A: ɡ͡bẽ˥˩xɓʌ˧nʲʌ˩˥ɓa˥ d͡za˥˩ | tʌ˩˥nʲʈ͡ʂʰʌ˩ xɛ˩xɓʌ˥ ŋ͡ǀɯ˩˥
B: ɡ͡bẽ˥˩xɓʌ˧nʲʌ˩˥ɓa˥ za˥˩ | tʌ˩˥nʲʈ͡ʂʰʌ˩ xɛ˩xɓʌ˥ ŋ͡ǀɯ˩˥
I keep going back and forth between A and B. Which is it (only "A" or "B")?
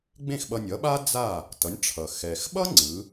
A